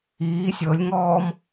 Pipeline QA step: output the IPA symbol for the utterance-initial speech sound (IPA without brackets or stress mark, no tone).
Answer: iː